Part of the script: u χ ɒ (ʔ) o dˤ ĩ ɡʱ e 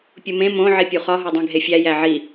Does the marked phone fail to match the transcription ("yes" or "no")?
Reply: yes